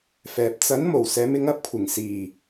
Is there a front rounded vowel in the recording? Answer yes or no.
no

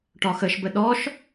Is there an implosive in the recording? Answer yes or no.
yes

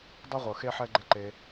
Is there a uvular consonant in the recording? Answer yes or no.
yes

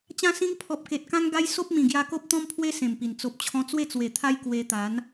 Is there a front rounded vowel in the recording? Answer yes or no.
no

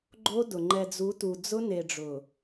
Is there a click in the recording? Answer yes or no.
yes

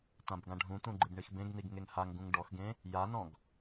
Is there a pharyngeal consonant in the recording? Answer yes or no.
no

